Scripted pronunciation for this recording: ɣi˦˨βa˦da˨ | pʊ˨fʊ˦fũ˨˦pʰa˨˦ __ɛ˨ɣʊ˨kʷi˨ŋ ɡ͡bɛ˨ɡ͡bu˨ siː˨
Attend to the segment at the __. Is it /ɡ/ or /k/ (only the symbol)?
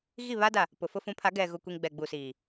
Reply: ɡ